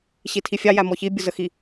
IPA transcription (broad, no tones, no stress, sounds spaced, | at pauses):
ɕ i tʰ i fʲ ɑ j æ m ɔ ç i bʲ ʊ z ə x i